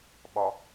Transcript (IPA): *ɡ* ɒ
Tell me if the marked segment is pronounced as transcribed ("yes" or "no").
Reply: no